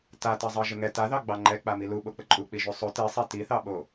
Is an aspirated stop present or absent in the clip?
absent